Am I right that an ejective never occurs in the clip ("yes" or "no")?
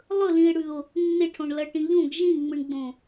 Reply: yes